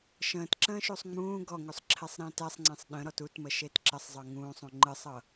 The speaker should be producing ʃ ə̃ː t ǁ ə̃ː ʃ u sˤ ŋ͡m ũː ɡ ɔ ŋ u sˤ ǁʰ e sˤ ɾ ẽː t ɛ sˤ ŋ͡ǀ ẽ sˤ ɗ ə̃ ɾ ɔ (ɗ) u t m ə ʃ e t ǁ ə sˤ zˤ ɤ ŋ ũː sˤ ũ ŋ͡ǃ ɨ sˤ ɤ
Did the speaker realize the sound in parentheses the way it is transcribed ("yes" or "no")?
no